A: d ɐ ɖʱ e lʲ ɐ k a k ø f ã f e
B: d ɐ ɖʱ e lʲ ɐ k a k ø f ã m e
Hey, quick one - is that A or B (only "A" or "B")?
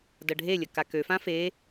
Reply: A